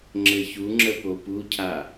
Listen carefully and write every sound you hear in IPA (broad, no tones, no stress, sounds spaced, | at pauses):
ŋ͡ǁ ɘ ç u ŋ͡ǁ ə p o p u cʰ a